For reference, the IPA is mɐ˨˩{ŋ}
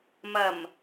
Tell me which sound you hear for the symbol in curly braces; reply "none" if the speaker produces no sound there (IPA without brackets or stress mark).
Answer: m